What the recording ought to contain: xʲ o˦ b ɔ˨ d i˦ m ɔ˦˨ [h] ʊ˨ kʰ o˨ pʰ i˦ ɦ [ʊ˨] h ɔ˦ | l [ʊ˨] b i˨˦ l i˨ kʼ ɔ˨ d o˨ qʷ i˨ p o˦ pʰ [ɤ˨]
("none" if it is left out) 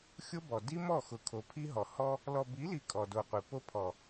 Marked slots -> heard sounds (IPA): x, ɔ˨, ɔ˨, ɔ˨

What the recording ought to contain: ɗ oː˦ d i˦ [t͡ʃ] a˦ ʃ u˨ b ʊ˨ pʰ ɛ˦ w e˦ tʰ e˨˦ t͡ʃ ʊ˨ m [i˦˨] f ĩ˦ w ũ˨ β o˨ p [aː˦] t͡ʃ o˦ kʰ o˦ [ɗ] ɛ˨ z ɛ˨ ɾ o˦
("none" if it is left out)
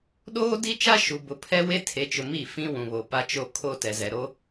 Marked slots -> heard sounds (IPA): t͡ʃ, i˦˨, a˦, t

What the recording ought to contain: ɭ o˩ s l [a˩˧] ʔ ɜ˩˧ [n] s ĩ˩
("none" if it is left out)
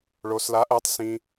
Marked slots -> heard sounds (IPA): a˩˧, tˤ

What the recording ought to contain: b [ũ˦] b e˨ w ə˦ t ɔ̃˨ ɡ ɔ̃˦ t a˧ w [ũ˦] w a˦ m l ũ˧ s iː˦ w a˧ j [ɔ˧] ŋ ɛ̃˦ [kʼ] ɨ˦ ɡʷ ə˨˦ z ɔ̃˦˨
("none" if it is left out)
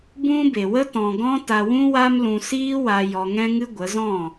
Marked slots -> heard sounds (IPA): ũ˦, ũ˦, ɔ˧, ŋ

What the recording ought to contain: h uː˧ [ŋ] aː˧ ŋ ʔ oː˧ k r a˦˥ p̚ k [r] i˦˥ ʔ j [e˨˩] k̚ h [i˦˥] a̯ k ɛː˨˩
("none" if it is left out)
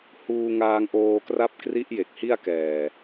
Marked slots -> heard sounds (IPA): ŋ, r, e˨˩, i˥˩

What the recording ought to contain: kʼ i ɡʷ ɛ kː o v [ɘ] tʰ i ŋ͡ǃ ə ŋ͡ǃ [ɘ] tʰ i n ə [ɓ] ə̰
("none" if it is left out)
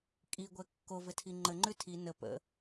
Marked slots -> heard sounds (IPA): ɘ, ʉ, p

